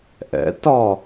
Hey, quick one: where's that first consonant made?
throat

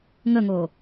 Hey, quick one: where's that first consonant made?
velum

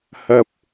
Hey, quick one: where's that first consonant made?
throat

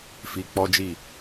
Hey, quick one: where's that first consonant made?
lips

